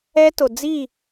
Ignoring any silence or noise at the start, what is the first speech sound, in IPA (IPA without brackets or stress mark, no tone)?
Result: ɛ